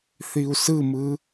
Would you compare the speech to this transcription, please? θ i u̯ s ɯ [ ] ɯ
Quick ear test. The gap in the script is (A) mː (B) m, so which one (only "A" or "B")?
B